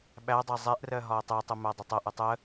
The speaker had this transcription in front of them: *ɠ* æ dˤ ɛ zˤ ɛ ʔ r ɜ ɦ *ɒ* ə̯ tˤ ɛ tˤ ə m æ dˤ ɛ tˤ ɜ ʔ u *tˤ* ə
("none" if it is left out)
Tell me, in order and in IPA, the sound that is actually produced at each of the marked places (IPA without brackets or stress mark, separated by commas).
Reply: ɓ, ɒ, tˤ